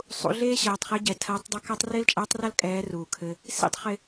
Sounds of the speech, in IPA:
sˤ ṵ˧ ɮ eː˥ ɕ ɐː˩˧ tˤ χ e˧˥ ɟ ɛ˩˧ tʰ ɐː˧˥ tˤ dˤ ɐ˥ k a˥ tˤ r ɪː˥ l t͡ʃʼ ɐː˧˥ tˤ r ɐ˥ l kʼ ɛː˧˥ r uː˩ kʰ ɘ˧ | s ḭ˥ tˤ χ ɪ˧

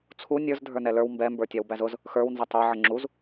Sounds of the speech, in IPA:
t͡sʰ u nʲ ə˞ z dʱ ə˞ n ɛ l ə˞ w m b ɛ m b ə˞ tʲ ɑ w b æ z ʊ z | x ə˞ w n z ʌ tˤ ə˞ ʕ ə ŋ͡ǁ u z

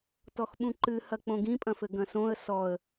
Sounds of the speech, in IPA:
t ɔ x ɓ ũ ǃ ɨ h ɐ k͡p õ ɡ ĩ pʼ ɐ̃ f ɘ ɡ ɐ̃ s õ ə̯ s ɔ ə̯

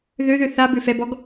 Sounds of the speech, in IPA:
ð ø ð ø θ a b ø f ɛ b ɔ ɡ

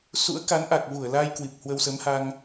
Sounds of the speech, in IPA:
s ṵ˧˥ ə̯ k a˨˦ n ʔ a˨˩ k̚ v u˧˩ ə̯ l a˧ j k w i˨˩ p̚ h w ə˧ w s ə˨˦ m h a˧ ŋ

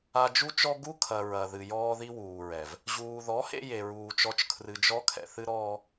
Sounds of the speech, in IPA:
a˧ d͡ʒ u˦ t͡ʃ ɔ˦ ɡ u˦ kʰ ɐ˨ ɹ ɐ˨ ð ɨ˨ j ɔː˦ ð i˦ w uː˨ ɹ ɛ˨ v | ʑ uː˨ ð ɔ˨˦ h ḛ˧ j e˨ ɹ uː˨ t͡ʃ ɔ˧ t͡ʃ kʰ r ɨ˨ d͡ʒ ɔ˧ kʰ ɛ̰˨ θ ɨ˦ ɾ ɔː˦

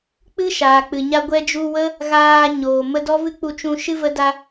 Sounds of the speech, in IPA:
k͡p ɨ˦ ʃ aː˨ k͡p ɨ˨ ɲ a˧ ɡʷ ɛ˧ d͡ʒ u˧ w ə˦ | ɣ aː˧ ɲ oː˨ m ə˧ d ɔ˦ v ɨ˦ k͡p u˧ t͡ʃ ũ˧ ʃ ɨ˦ v ə˦ d a˦

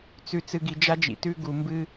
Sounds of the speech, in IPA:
t͡s ʉ˨ t͡s ɨ˨ ɡ i˨ d͡ʒ a˧ d͡ʒ ḭ˨ t ʉ˧ ɡ u˨ m b ɨ˧

